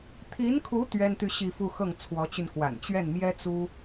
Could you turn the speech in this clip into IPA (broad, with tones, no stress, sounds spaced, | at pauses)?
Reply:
t̪ʰ i˧˥ n kʰ u˧˥ t̪ ɥ ɛ˥ n t̪ y˥˧ ɕ i˥˧ f u˥˧ x ɤ˥˩ ŋ t͡sʰ w ɔ˧˥ t͡ɕ y˧ n k w a̰˨˩ n t͡ɕ ɥ ɛ˥˩ n m j ɛ˥ t͡s u˥